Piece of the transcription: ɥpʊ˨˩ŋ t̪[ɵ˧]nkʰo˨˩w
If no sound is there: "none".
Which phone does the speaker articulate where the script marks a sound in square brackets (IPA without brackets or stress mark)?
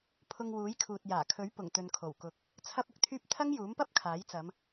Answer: ɵ˨